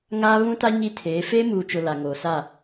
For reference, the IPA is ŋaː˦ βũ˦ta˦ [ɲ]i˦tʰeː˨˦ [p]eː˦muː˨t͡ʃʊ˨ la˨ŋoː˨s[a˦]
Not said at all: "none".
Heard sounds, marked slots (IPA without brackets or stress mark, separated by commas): ɲ, f, a˦˨